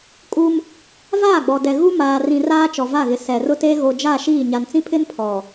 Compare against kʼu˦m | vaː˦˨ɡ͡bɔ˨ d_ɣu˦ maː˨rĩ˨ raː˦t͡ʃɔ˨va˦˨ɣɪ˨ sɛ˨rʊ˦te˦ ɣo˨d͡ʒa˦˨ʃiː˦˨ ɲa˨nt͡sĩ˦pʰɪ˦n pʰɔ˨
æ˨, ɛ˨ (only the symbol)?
ɛ˨